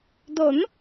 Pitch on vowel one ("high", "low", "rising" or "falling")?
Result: rising